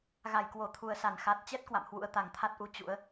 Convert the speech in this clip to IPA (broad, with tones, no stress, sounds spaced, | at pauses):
ɣ a˧˩ j k w o˧˩ t̪ʰ u˨˩ ə̯ s a˧˩ n x a˨˩ t̚ t͡ɕ ɛ˦˥ t̚ k w a̰˧˨ m h w ṵ˧˥ ə̯ t̪ a˨˩ ŋ t̪ʰ a˦˥ t̚ ʔ u˨˦ t͡ɕ ṵ˧˥ ə̯